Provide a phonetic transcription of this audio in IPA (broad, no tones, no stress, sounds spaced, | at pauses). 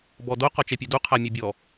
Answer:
b ɔ d o q ɔ t͡ʃ ɛ pʲ ɛ d u qʰ a mʲ ɛ bʲ ɔ